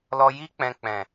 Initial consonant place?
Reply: alveolar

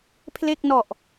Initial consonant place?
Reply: labial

